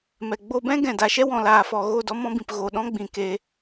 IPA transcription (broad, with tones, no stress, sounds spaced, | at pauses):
m ɛ˨ ɡ͡b o˧ b ɛ̃˦ ɡ ɛ̃˨ d a˨ ʃ ɛ˦ w ɔ̃˨ l aː˨ f ɔ˨ ɣ o˦˨ d ɔ˦ m ɔ̃˦ b ĩ˨ p ɣ o˨ ɗ ɔ̃˦ ɡ͡b ĩ˨ k e˧